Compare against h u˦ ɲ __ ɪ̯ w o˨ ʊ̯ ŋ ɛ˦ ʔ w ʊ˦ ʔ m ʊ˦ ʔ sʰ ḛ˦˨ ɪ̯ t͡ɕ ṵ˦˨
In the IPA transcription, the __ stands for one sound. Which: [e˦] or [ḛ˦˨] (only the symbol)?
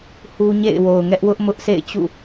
ḛ˦˨